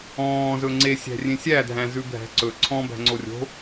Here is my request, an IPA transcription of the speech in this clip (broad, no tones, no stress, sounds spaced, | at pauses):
ɔ̃ː z ɵ ŋ͡ǀ e sʲ æ̤ rʲ ẽ sʲ æ dʱ æ̃ z ʉ bʱ æ̤ ǀ ɵ ǀʰ ɔ̃ b æ̤ ŋ͡ǀ o rʲ o̤